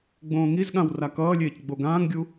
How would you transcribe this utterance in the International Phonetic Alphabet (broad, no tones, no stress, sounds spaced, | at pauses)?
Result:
ɡ͡b õː ŋ i z ɠ ã w r a k ʌː lʲ eː c ɡ͡b o ɡ ãː ŋ ɡʲ u